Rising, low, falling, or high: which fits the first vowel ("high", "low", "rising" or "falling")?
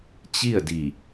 falling